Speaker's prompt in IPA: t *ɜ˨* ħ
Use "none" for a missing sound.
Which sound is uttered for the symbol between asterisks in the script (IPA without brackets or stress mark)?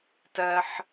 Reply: ɜ˨